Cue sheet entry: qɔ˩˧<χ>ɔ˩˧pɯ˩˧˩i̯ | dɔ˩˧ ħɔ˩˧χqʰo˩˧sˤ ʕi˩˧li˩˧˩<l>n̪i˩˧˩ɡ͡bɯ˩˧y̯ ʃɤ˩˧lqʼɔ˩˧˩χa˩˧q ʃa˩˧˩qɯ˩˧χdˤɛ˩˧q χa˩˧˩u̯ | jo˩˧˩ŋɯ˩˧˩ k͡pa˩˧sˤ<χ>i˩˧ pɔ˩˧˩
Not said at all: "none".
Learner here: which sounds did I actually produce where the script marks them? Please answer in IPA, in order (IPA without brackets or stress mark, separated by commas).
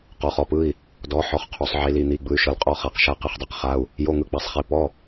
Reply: χ, none, χ